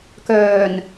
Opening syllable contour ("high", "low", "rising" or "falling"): low